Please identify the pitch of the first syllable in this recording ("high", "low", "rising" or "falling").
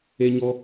high